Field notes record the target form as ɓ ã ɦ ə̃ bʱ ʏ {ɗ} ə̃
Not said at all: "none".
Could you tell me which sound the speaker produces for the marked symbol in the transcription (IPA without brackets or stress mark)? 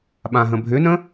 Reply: n